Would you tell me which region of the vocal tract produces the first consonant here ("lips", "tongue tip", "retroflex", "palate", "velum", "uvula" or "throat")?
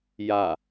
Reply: palate